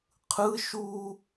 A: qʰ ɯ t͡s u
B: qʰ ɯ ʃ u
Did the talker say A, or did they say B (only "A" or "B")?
B